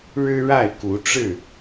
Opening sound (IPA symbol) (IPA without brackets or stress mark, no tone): ɻ